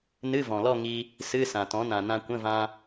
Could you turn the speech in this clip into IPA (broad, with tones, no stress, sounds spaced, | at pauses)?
n ɨ˧˥˧ v ɔ̃˩ l ɔ˥˧ ŋ i˧ | s ɨ˧˥˧ s ã˩ t ɔ̃˩˥ n ã˩ n ã˧ kʷ ə̃˧˥˧ v ã˧